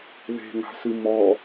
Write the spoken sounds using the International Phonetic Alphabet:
ðe̤ŋa̤sɨ mɔ

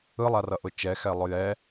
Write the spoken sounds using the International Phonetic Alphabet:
ɯlˠarʌʔʊ t͡ʃɛxɛlˠʊ jɛ

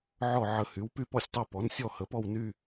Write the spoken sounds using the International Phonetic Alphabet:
ʕɔ˥˨ ʕə˨ hy˩˥w py˥˨pɔ˥˨sʲtˤo˥˨ pɔ˩˥n sʲɔ˥˨hə˩˥pɔ˥˨w ny˥˨

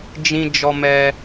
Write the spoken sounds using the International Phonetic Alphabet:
d͡ʒĩ˧ d͡ʒɔ˧mɛ˧

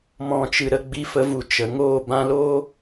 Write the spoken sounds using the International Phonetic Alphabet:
mɔ̃˨t͡ʃɨ˨ ɾə˧ɡ͡bi˧fə˧ vu˨t͡ʃə˨ŋoː˦˨ bã˧loː˦

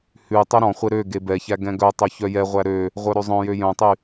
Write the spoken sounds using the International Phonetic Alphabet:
hʉ tˤœɾɔ̃χʷe ɾø ɡebɛçæ ɡɛ̃ɡœtˤœ çœjɛʁʷæ ɾø | ʁʷœɾøzˤœ̃jø jœ̃tˤy

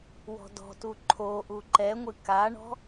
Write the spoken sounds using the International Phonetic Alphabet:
wɔ̤dɔ̤tu ǃʰoʔu ǃɛŋʷɨ kaɳɔ̤

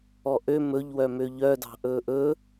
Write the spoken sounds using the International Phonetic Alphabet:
ɔʔø mɵʎwœmø ʎœdɑ̤ʔɵːʔ ɵ

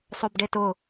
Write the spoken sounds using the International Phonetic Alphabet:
sˤobɖetʊ

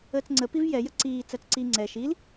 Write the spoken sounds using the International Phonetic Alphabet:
əːt͡sŋ͡ǀə pivjɛ jəǀiː t͡sɜt͡sǀi ŋ͡ǀɛ ʃil

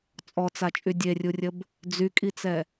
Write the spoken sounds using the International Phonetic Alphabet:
t͡sʼɔt͡sat͡ʃʼy dʲerʲurʲəb | d͡zykʼit͡sɛ

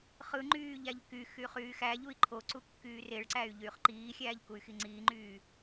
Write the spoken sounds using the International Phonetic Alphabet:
χɯŋ͡ǃyː ʎæʎkyxy χyːxæʎui̯ ǃʰoǀu kːyːreɭǀæy̯ ʎyːχǃiːxʲæːʎ kuy̯xiŋ͡ǀiːŋ͡ǃyː

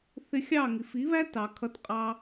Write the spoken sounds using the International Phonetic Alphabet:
θɪ˧xʲɑ˦˨ŋi˨f i˨˦βæ˦ tɑ˨kʰʌ˧t qʼɑ˧

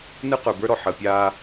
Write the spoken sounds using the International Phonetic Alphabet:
nɯ˦ qə˞˨bə˞˦ɾɔ˨ ħəː˨pʲaː˦

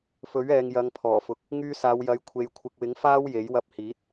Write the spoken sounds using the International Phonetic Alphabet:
fɵ˨˥ɥɛː˨ŋjɐ˨˧ŋ pʰɔː˨˩fʊ˨˥k̚ | ŋyː˧saː˨˧wjɐ˨˧j kʷʰe˨˧jkʷʰɪ˨k̚wɪ˨˥ŋ faː˥wje˨˥jwɐ˧p̚hiː˨˥t̚

